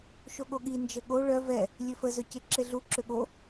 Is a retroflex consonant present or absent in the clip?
present